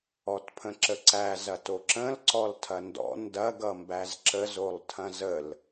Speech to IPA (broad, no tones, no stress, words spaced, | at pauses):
ɔtpʰə̃ǁəǀæ zɐtoǁə̃l ǀɔltʰɐndɔ̰ ndɐɡ ʌmbæzǁəz olˠtʰɐ̃zəl